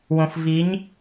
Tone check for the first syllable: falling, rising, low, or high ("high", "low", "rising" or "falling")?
low